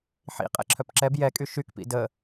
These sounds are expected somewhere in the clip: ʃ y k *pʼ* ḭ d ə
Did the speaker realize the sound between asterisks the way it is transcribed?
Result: no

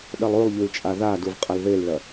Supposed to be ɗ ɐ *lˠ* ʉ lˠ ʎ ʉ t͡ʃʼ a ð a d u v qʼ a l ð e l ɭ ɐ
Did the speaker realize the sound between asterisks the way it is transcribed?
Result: yes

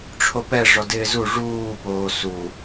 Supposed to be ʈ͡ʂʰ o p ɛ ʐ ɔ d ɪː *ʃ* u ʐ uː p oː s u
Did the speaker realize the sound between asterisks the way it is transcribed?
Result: no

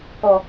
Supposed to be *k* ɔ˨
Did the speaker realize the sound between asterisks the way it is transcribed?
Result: yes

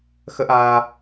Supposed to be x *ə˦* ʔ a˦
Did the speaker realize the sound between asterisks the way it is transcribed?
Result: yes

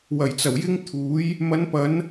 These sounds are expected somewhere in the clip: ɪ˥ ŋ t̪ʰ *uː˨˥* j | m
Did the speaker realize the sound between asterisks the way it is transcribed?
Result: yes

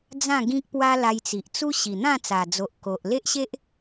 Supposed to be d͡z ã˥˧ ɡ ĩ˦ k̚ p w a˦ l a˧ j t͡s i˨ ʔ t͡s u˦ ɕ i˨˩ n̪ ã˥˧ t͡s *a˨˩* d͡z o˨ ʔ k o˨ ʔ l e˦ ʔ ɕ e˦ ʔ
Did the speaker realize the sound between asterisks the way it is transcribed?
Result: yes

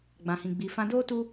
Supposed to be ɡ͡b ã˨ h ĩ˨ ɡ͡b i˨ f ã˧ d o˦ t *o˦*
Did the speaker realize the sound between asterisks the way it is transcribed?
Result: no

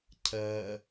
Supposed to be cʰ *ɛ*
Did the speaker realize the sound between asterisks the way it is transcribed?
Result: no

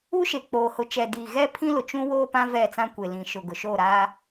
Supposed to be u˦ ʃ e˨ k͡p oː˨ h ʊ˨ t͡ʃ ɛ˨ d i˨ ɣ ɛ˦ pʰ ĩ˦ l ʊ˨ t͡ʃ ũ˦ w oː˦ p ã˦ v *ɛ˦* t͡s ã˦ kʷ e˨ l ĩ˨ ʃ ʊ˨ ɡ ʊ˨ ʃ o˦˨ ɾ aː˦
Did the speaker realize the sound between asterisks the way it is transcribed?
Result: no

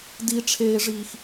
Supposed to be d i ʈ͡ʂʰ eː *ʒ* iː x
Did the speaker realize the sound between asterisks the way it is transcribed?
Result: no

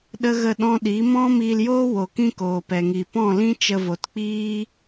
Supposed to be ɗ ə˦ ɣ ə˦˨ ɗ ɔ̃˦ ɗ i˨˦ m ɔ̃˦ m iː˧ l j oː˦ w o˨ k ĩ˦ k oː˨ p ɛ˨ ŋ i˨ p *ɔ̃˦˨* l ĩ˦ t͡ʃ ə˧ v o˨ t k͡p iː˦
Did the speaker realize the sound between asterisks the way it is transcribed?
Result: yes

